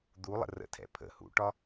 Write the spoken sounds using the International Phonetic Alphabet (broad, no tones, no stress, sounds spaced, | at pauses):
d̪ u lˠ ə̰ r ə̰ tʰ ɛ̰ pʰ ə̰ h ṵ ʈ ɒ